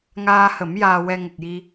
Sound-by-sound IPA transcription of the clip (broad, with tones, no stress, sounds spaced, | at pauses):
ŋ aː˧ h ə˨˩˦ m j aː˧ w ɛ˧ ŋ ə˨˩ k̚ j i˧